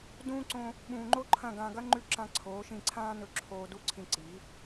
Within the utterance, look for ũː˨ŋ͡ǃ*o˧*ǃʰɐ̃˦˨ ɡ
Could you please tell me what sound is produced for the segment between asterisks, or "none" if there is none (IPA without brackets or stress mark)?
o˦